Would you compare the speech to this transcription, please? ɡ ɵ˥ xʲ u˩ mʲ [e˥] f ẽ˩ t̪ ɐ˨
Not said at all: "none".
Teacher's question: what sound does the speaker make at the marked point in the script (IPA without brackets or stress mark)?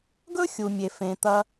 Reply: e˩